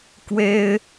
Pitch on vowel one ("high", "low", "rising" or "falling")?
high